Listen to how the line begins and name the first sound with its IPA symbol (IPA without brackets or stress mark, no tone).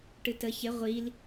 ʈ